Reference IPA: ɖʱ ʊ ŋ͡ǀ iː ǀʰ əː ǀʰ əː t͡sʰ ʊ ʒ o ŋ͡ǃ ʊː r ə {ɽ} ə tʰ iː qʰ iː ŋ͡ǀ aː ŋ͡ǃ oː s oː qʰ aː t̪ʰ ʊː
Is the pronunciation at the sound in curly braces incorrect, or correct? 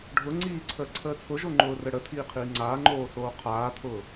correct